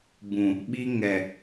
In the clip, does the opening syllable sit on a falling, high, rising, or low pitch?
low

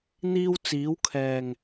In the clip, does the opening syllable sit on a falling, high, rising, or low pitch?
high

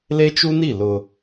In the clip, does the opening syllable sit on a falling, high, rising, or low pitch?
high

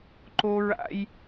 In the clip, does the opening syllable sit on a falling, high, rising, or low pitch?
high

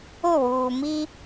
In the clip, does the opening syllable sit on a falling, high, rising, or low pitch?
falling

